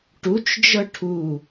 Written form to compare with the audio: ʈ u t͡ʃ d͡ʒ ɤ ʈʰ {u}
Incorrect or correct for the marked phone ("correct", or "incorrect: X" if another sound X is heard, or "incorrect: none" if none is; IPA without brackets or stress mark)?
correct